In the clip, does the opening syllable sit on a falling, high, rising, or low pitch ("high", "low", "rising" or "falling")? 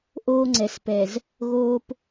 high